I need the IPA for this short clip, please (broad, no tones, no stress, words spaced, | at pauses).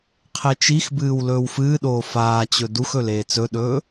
qʰet͡ʃixbɨːw lɵːwfɨːɗoː faːt͡ɕɵ duxɵl eːt͡sɵɗɵː